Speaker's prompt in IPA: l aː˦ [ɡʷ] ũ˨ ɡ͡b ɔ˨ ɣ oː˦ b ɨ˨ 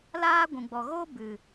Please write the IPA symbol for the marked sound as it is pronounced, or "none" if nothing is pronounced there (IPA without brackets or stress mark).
ɡʷ